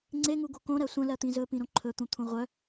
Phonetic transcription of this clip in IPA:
ŋ͡ǀ e ŋ u ɡ o k õ ɾ ɜ sʷ ə̃ l ɜ t̪ ĩ z ɵ p ĩ ɾ õ ǃʰ ɵ t̪ ũ t̪ʰ ũ ʁʷ œ

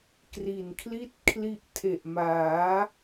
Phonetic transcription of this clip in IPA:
k r i˨˩ n kʰ l i˥˩ t̚ kʰ l i˦˥ ʔ tʰ e˨˩ ʔ m aː˩˦

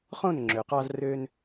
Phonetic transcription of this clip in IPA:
χ õ˦˨ n ŋ͡ǁ ø˨ q ɑ˧ z r ø˧ n

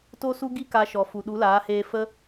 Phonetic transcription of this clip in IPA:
t o˦ s u˦ ɡ i˦ k a˧ ʃ ɔ˨ f u˨ ɗ u˨˦ l aː˨˦ h eː˧ f ə˧

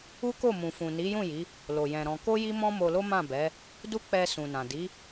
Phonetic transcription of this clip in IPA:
u˦ k o˦˨ m ũ˨ f ũ˨ n i˨˦ j ũ˦˨ j i˨˦ | l o˨ j ɛ̃˨ ɾ ɔ̃˧ k o˦ j i˦ m ɔ̃˦ m o˧ l o˦ m ã˦˨ b ɛ˨˦ | d u˦ k͡p ɛ˧ s ũ˨ n ã˨ d i˨˦

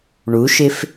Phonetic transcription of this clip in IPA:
ɳ u ʃ ɪ f

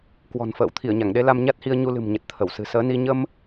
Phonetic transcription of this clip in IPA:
k w ɔ̤˨˩ n f ə̰ː˧˨ w t̪ʰ i˧˩ ə̯ ɲ a˧˩ ŋ ɗ e˧ l a˧ m ɲ a˦˥ t̚ h i˧ ə̯ ɲ u˧ l ɨ̤˨˩ m ɲ ə˨˩ t̚ t̪ʰ ə˧˩ w s ɨ̤˨˩ s əː˨˦ n i˧ ɲ ə˧ m

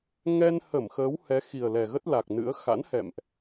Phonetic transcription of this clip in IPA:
ŋ ɛ˧ n h ə˧˩ m x əː˨˦ w h ɛ˨˦ x i˨˩ ə̯ l ɛ˨˩ ɣ ə˦˥ t̚ l a˨˩ k̚ n ɨ̰˧˥ ə̯ x a̰˧˥ n h ɛ̰˧˨ m ʔ

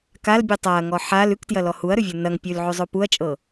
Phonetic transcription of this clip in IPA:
k a l bʲ ʉ tˤ a ɐ̯ ŋ ɔ ħ a l ʉ k t j ɐ l ɔ h u ɐ̯ ɾ ʉ vʲ o n ɐ ŋ pʲ ʉ l ʕ ʉ zˤ o p u ɐ̯ t͡ʃʼ ɤ

